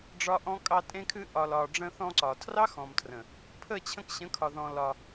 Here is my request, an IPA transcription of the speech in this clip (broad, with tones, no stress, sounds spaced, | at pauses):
ɖ͡ʐ ɒ˧ ʔ ɔ̃˦ kʼ ɑ˧ tʼ ẽ˧ kʰ ɨ˧ ʔ ɒ˨ l ɒ˨ ɖ͡ʐ ə̃˧ θ ɔ̃˧ ǀ ɒ˨ tʰ r ɑ˦ x ɔ̃˨ m tʰ r ə̃˨ | pʰ ə˦˨ t͡ɕʰ ə̃˧ k ɕ ə̃˨˦ kʰ ɒ˨ ð ɔ̃˧ l ɒ˧